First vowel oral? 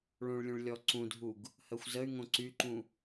no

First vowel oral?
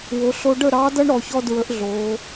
yes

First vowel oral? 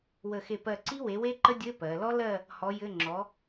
yes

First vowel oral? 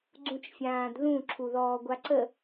no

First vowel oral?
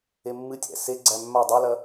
yes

